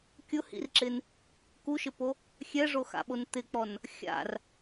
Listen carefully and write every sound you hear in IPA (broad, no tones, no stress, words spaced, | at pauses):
kʲʊhḭrǁɪn | kuʃɪpo | xʲɛʐoxa̰ɓon t̪ɪk͡pɔn | xʲa̰r